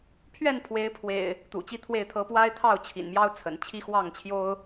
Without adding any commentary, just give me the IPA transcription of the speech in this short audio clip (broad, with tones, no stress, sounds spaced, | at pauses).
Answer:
pʰ ɥ ɛ˥˨ n pʰ w e˨˦ ɪ̯ pʰ w ḛ˨˩ ɪ̯ | t̪ ṵ˨˩ t͡ɕ i˦ t̪ʰ w e˥˨ ɪ̯ t̪ʰ ɤ˦ p w a˦ ɪ̯ t̪ʰ ɑ˥˨ ʊ̯ t͡ɕʰ ḭ˨˩ n m j ɑ˦ ʊ̯ t͡sʰ ə̰˨˩ n t͡ɕʰ i˦ x w ɑ˥˨ ŋ t͡ɕʰ j o˦ ʊ̯